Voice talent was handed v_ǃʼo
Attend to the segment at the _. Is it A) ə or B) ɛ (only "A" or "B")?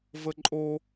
A